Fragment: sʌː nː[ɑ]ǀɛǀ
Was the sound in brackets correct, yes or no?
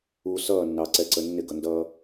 yes